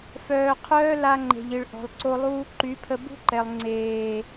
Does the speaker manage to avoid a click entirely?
no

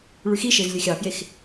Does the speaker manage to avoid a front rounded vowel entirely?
no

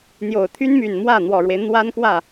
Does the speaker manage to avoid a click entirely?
yes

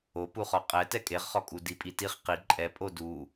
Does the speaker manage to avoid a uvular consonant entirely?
no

